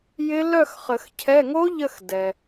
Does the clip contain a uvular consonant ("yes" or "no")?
yes